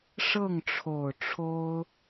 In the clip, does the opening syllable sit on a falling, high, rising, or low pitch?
falling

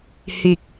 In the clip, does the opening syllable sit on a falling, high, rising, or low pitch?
low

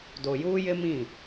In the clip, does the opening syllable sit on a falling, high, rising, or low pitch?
low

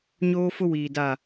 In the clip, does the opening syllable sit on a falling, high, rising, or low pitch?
high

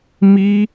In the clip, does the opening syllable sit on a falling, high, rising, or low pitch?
high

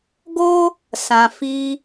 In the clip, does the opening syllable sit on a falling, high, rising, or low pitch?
high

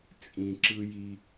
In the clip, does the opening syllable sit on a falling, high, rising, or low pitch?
low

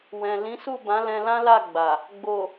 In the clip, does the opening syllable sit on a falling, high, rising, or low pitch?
low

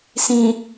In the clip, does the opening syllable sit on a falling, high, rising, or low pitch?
low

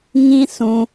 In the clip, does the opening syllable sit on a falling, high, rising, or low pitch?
high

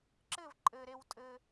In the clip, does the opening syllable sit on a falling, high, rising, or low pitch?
falling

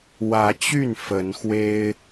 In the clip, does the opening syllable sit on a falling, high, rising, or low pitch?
rising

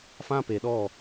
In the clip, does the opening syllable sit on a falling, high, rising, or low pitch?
high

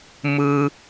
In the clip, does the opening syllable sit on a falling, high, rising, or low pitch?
high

